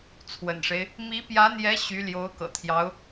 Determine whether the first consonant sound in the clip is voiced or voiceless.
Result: voiceless